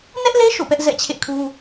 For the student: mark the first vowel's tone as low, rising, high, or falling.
high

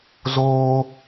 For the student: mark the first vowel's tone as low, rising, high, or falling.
high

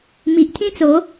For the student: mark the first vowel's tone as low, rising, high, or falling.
low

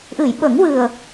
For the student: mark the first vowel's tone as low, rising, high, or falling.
low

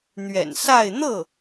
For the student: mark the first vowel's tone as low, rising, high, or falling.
low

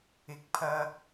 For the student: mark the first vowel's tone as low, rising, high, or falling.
low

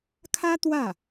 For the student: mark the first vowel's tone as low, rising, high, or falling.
high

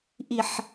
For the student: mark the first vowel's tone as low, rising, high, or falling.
low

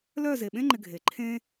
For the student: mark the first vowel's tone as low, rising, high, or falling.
falling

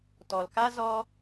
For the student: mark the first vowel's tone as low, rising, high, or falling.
low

